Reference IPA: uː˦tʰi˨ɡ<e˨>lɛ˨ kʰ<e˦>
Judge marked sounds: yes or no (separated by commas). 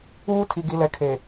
no, no